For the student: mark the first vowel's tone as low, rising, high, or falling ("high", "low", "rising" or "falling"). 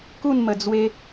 falling